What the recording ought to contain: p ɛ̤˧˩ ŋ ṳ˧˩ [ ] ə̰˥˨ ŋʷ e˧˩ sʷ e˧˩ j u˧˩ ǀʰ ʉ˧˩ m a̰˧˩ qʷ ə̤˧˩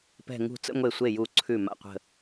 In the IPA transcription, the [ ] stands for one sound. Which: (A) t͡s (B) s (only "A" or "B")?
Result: A